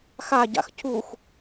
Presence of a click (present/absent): absent